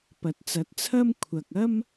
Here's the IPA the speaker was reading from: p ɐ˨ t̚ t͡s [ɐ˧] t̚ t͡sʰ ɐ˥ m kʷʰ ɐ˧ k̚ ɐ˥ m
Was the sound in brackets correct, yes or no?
no